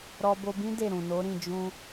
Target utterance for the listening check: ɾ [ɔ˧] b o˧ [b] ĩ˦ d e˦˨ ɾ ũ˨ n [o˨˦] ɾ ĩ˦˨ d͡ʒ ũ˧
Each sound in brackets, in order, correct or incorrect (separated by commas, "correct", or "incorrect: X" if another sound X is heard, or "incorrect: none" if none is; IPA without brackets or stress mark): correct, correct, correct